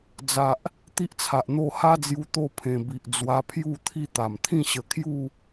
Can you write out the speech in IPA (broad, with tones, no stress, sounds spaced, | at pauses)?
d͡z a˨ ʔ | t̪ i˦ ʔ t͡sʰ a˨ ʔ n̪ o˥˧ h a˦ d͡z j u˧ t̪ o˥˧ pʰ ẽ˨˩ b i˨ ʔ d͡z w a˧ pʰ j u˥˧ t̪ʰ i˥˧ t̪ a˨˩ m t̪ʰ ĩ˥˧ ɕ ə˧ kʰ j u˥˧